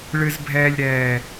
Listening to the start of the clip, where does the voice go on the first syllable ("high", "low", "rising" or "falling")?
high